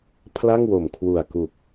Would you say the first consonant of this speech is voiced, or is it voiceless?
voiceless